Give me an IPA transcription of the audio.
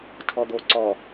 tʰɔd̪o ǀɔ

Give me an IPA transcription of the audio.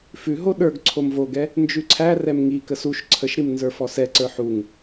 fʉɦo ɗə˞ɡ ǀʰomvoɡɛ | nd͡ʒʉǀʰærɛm ŋikəs uʃ ǀʰəʃɾim nzə˞fɔsɛǀə˞ ħuŋ

